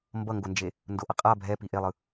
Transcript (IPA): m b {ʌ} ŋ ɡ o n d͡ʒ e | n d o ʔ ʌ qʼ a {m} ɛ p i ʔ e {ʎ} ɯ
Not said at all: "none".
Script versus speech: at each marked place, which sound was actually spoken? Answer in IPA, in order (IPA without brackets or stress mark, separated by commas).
ʌ, bʱ, lˠ